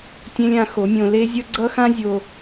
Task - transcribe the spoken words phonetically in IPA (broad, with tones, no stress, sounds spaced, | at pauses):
tʲ ẽ˦ lʲ ã˧ x o˨˦ mʲ õ˧ l e˦ zʲ ʌ˦ ɡ͡ǀ ʌ˦ x ã˦ zʲ o˧